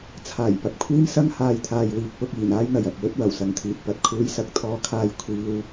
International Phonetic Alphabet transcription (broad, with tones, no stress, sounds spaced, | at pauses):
t͡sʰ aː˨˩ j p ɐ˨ p̚ kʷʰ iː˥ m s ɐ˥ ŋ h aː˧ j t̪ʰ aː˨ j w iː˨ k̚ p ʊ˧ k̚ iː˨˩ n aː˥ j n̪ ɐ˨ j ɐ˨ p̚ w ɵ˥ t̚ w ɐ˨˩ w s ɐ˨ ŋ t̪ʰ iː˨ t̚ p ɐ˨ t̚ kʰ uː˨˧ j s ɐ˨ k̚ t̪ʰ ɔː˧ kʰ aː˧ j kʷʰ iː˨ w